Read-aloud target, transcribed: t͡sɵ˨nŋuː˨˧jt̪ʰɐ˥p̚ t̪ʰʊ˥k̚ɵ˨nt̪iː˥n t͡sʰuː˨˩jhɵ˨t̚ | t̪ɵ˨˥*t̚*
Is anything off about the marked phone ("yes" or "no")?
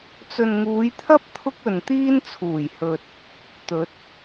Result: no